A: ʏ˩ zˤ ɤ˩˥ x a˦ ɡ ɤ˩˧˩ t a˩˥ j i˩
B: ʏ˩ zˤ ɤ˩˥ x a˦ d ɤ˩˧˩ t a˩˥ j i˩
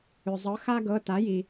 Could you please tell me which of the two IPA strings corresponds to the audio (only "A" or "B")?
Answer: A